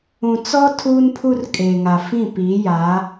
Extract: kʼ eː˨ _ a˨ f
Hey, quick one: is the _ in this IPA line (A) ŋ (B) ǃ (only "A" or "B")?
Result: A